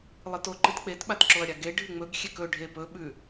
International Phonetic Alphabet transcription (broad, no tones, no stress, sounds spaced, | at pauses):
lˠ ɨ t o ǃ ɨ t k͡p e t ɓ a t ǁ o ɐ̯ ɾʲ a ɡ e ɖʱ ɨ ŋ͡m ɵ ɡ xʲ e k ɵ ɖʱ e p ɵ ɓ ʉ